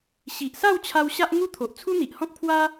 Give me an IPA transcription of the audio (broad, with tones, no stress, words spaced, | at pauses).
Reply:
ɕi˨ʔsa˥˧wt͡ɕʰa˧w ɕa˦ʔŋu˦t̪ʰo˨ʔ t͡sʰu˦n̪i˨ʔhɔ̃˦k̚pʰwa˦